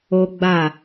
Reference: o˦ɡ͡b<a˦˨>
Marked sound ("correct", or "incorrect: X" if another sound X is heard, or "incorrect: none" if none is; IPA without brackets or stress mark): correct